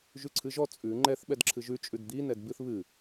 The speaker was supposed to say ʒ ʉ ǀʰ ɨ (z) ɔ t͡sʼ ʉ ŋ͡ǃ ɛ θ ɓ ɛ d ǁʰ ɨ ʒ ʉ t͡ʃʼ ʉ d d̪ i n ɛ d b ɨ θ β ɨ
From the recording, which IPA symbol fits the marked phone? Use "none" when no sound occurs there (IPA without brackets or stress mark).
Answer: ʒ